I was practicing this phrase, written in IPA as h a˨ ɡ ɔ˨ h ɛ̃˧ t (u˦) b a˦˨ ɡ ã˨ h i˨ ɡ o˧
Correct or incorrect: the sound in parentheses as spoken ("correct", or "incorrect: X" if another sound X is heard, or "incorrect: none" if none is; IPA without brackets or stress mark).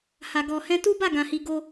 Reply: correct